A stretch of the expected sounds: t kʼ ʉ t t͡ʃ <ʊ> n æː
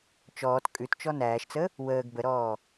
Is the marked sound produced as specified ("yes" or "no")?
no